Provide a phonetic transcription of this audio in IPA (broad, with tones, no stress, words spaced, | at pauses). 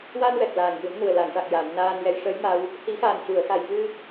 wa˧nwɛ˨˩k̚ laː˨˩ŋjɨ˨˩˦m nu˨˩ə̯la˨˩˨ŋʂa˨˩k̚ja˨˩˨m naː˧njɛ˧˥j ʂə˧˥j ma˧w | hi˨˩˦xaː˨˩n cu˨˩˨ə̯ xa˨˩j vɨ˧